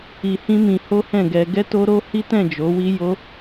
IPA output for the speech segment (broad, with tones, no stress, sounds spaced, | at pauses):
i˧ h ĩ˦ m ĩ˧ h o˦ h ɛ̃˦˨ ɡ ɛ˧ ɡ ɛ˦ t o˦ ɾ o˦ h i˦ t ɛ̃˦˨ d͡ʒ o˨˦ w i˦ j o˦